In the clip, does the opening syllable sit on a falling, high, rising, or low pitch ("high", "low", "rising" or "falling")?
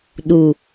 low